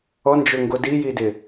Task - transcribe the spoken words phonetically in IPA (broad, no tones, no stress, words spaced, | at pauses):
ɔnd͡ʒʊŋɡo dijidɪ